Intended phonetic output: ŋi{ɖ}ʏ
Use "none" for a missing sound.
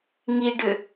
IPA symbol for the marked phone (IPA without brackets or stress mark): ɖ